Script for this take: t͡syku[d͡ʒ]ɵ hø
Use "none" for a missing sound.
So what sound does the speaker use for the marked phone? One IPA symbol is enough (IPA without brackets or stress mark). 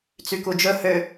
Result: d͡ʒ